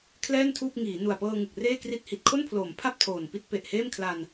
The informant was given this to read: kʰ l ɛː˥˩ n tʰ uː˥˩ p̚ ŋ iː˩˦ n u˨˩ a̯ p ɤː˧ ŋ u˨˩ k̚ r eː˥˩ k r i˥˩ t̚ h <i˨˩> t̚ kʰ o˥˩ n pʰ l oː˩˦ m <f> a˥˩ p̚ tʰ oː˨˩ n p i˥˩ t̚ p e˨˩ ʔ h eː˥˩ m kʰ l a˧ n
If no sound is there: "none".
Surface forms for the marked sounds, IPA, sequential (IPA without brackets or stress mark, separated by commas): i˨˩, pʰ